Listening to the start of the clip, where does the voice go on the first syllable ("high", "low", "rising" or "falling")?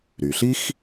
low